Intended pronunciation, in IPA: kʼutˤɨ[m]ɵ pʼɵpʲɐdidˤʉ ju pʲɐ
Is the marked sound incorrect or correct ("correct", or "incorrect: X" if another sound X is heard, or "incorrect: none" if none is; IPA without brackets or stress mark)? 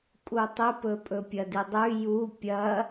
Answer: incorrect: p